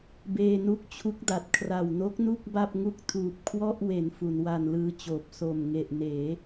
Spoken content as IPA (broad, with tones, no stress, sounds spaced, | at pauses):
b eː˧ n u˦˥ k̚ t͡ɕʰ u˦˥ k̚ d a˨˩ t̚ kʰ r a˨˩ w n o˦˥ k̚ n u˥˩ k̚ b a˥˩ p̚ ŋ u˥˩ k̚ tʰ uː˨˩ p̚ kʰ w ɔ˥˩ ʔ w e˩˦ n f u˩˦ n w a˧ n l ɯː˧ t͡ɕ oː˨˩ p̚ s o˨˩ m ŋ e˨˩ ʔ n eː˩˦